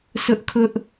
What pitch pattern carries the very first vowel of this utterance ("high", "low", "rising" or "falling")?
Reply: high